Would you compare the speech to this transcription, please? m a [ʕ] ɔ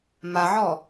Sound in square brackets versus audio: correct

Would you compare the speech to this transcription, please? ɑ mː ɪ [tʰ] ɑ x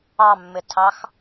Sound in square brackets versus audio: correct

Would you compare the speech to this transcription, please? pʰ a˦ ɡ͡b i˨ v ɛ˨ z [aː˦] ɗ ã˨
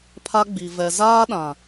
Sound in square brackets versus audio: correct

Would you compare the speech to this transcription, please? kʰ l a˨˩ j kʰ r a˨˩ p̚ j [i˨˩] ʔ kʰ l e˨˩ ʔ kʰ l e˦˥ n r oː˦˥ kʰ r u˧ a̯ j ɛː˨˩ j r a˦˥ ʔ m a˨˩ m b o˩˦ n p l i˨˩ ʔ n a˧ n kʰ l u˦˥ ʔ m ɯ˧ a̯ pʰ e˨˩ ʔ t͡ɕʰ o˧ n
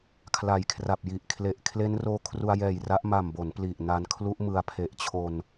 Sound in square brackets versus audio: correct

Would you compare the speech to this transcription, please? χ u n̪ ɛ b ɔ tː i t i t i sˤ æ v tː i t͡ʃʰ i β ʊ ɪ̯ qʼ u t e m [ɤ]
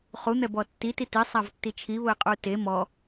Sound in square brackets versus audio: incorrect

